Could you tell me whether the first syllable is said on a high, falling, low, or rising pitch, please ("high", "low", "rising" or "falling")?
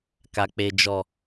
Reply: low